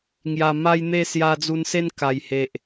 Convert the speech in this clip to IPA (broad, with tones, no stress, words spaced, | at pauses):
ŋja˨˩ ma˧jn̪e˧ sja˧d͡zu˧nse˦n ka˨˩jhe˨ʔ